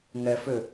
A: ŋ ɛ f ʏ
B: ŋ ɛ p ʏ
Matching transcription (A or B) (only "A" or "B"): A